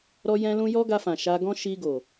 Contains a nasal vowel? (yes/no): yes